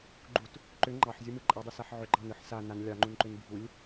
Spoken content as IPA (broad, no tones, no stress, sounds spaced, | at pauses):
ɡ͡ǃ u t | ǃ ʏ ŋ͡ǃ ɑ ħ zʲ u m ɯ ǃʼ a dˤ u s a ħ ʕ ʏ ɡ͡ǃ ɑ n ɯ ħ s a n a n lʲ ɑ ŋ͡ǃ u n ǃ ʏ n bʱ u lʲ